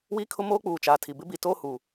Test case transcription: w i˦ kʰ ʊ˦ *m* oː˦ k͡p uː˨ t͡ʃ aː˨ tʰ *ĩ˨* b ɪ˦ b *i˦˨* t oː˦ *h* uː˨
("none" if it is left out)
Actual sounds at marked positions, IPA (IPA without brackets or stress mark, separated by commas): m, i˨, i˨, h